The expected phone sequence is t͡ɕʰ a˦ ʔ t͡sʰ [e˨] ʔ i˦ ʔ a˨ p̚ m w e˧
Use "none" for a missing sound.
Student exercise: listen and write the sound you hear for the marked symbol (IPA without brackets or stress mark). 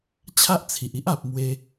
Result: i˨